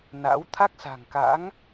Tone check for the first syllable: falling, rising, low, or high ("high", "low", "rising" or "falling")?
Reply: rising